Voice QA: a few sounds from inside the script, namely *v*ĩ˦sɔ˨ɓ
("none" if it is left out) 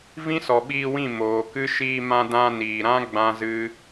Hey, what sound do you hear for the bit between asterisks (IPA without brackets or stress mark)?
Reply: v